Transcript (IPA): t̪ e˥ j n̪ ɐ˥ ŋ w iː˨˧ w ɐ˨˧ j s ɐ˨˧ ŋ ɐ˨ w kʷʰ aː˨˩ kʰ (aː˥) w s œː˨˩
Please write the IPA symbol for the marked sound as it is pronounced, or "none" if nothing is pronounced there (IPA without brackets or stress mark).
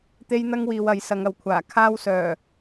aː˥